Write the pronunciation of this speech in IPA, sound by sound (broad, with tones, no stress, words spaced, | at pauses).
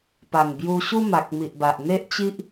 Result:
pa˨˩ŋbju˧ɕu˦ ma˨k̚mi˨ʔba˨ʔ n̪e˦ʔt͡ɕi˦ʔ